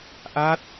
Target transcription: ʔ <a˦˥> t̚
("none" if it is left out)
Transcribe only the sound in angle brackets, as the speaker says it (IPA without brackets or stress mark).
a˦˥